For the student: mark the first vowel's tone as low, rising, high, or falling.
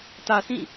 low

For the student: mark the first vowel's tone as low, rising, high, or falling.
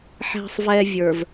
low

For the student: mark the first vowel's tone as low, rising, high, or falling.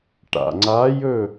low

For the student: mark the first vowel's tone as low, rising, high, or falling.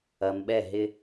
low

